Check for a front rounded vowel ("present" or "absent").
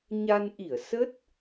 absent